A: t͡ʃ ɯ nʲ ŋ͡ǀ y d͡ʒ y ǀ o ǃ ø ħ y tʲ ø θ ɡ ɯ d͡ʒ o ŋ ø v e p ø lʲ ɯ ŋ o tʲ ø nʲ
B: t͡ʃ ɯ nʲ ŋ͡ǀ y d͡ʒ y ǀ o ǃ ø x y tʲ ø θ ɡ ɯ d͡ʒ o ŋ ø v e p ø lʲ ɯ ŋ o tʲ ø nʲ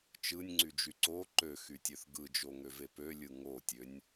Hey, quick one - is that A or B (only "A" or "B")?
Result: B